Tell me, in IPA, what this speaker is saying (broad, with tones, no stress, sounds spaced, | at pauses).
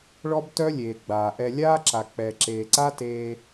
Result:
ɭ ɔ˦ b t œ˦ lʲ eː˨ ɡ͡b aː˨ ʔ ɛ˧ lʲ aː˦ ǁ a˨ k͡p ɛ˨ ǁ eː˨ ǀ a˦ t eː˧